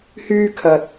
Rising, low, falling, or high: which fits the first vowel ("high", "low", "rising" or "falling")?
high